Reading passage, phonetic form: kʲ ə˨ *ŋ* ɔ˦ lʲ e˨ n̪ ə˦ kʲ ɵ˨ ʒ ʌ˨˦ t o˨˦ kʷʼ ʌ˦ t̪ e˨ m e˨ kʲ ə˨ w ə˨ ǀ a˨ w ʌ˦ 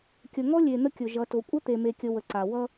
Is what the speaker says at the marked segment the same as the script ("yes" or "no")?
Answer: yes